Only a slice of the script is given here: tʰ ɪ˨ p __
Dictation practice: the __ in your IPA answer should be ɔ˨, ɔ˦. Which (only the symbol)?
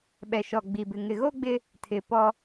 ɔ˦